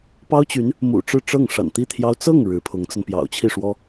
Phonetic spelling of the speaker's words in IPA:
pɑ˥ʊ̯t͡ɕy˧˥n | mṵ˨˩ ʈ͡ʂɻ̩˥˧ʈ͡ʂɤ˥˩ŋ ʂa̰˨˩nt̪i˥˩t̪ʰjɑ˥ʊ̯ t͡sɤ˥˩ŋ ɻɻ̩˧˥pʰʊ˧˥ŋt͡sə˧n pjɑ̰˨˩ʊ̯t͡ɕʰi˥˩ʂwɔ˥

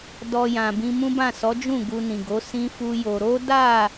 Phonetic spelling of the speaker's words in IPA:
dɔ˧jã˨ bĩ˧mũ˦bã˦˨ sɔ˨˦d͡ʒũ˦˨ ɡu˧nĩ˨ɡo˨˦ sĩ˦fu˦jo˧ ɾo˦da˦˨

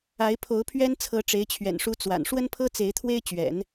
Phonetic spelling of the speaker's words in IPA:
a˧˥ɪ̯pʰo˧˥ʊ̯pʰɥɛ˥n t͡sʰɤ˧˥ʈ͡ʂe˧˥ɪ̯t͡ɕʰɥɛ̰˨˩nʂu˧˥ t͡swa̰˨˩n ʂwə˥npʰɤ˥ t͡se˧˥ɪ̯t̪ʰwe˥ɪ̯t͡ɕɥɛ̰˨˩˦n

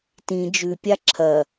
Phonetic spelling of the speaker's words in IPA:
tĩ d͡ʒʉpʲa ǁʰɐ

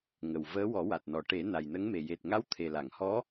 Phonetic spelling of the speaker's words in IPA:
ŋə˨˩w vəː˧˥ wɔ˨˩˦wa˨˩t̚nɔ˨˩ ʈe˨˩˦ na˨˩jnə˧˥ŋme˨˩ je˨˩t̚ŋa˧˥w t̪ʰe˨˩la˨˩˨ŋhɔ˧˥

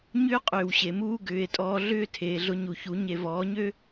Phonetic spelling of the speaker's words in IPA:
ɲʏː˦qʼʏː˨wɕe˨ muː˦ɡʏː˨˦e̯ tʼɔː˧ɮʏː˦ tʰeː˨ɮʊ˧ɲu˨çu˨˦ ɲe˨vɔː˨˦ɲø˦

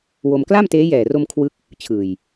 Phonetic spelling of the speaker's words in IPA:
wo˧m kla˥˩mteː˦˥ jɛː˨˩ro˧m kʰwɯ˥˩k̚ | t͡ɕʰɯː˨˩j

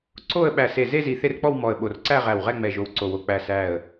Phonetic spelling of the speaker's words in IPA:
ǀo˥˧ə̯ ɓæ˧˩se˧˩ ze˥˧zi˧˩ θe˥˧rk͡pɔ˥˧w mɔ˧˩ə̯ɓo˧˩rǀæ˥˧ ʁæ˧˩wʁɛ˥˧ŋ͡mɛ˧˩ ʒo˧˩wǀo˧˩wo˧˩ k͡pæ˧˩sæ˧˩ə̯

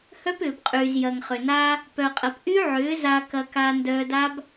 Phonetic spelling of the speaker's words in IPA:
hœ˦p ʏː˨bqʼyː˨z jɐ˨ŋχʏ˨na˦ | pœ˨qʼɐ˨p ʔy˦ʕʏː˨˦ za˧ kɐ˧ka˧ ndœː˧da˦b

